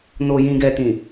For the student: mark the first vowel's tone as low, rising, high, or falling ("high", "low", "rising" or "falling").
low